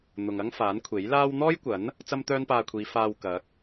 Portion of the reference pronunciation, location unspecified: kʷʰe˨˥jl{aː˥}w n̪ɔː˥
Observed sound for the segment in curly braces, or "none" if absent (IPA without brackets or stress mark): aː˥